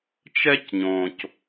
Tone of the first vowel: high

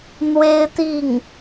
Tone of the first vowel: high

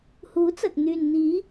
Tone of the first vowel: rising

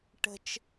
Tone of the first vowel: low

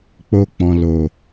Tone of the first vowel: high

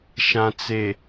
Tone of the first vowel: low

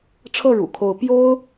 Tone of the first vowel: falling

